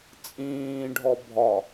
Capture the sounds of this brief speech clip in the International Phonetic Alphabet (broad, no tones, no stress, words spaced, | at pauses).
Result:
t͡sʼĩːɖʱɔ bʱɒ